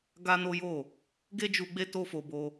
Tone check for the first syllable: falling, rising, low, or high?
high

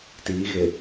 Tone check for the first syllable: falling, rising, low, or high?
rising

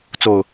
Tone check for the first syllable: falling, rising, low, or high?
low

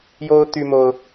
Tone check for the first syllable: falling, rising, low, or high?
high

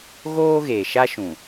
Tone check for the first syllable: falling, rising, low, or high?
high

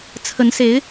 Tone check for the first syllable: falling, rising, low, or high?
rising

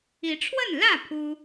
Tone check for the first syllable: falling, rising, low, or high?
rising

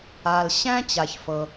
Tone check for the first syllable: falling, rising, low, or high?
low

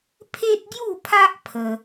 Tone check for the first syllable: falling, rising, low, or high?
high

